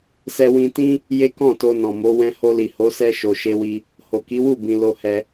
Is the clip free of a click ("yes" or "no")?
yes